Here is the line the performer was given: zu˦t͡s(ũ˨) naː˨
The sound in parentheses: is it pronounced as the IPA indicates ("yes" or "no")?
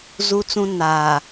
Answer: no